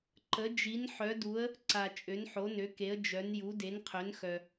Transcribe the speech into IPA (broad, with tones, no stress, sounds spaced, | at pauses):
ǃ ə˨˦ d͡ʒ i˨˦ n ħ œ˨˦ d u˨˦ ə̯ | ǀ a˨ t͡ʃʼ ø˨˦ n ħ o˨˦ n ø˨˦ k e˨˦ ə̯ d͡ʒ œ˨˦ n j u˨˦ d e˨˦ n qʰ ø˨˦ n x œ˨